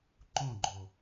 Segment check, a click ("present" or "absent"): present